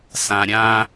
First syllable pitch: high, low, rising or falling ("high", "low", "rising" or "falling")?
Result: low